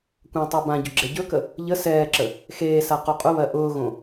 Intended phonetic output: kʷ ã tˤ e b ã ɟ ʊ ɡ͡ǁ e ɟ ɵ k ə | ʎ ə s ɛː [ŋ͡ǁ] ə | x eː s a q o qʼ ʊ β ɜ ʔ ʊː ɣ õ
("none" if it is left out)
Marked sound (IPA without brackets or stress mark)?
ǁ